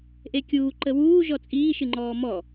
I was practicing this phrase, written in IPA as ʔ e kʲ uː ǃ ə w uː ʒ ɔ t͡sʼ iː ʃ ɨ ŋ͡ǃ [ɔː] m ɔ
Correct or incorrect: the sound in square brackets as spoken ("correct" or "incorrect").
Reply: correct